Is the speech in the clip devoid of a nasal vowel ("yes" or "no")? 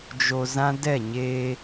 no